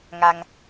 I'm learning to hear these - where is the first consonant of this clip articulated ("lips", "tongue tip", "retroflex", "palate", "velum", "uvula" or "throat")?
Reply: velum